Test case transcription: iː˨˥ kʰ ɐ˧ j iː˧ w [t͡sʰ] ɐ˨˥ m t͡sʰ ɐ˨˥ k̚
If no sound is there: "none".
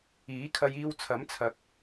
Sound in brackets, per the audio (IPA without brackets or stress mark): t͡sʰ